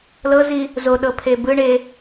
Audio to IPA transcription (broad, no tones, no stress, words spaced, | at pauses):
lɤzi | zoɗɤpʰe bɯɳe